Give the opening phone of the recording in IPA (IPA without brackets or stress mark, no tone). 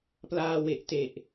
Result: p